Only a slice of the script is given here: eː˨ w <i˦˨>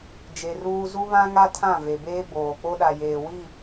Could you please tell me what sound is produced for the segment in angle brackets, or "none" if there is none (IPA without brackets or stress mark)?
i˦˨